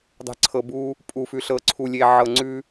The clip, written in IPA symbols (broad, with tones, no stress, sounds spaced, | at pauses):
dˤ e̤˨ ǀʰ ɤ˨ b u˦ | pʼ u˨ f ʉ˨ ɬ ɤ˨ ǀʰ u˨ lʲ e˨ ʕ ɤ˨ ŋ͡ǀ ʉ˦